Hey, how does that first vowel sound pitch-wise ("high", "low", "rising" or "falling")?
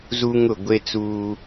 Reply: high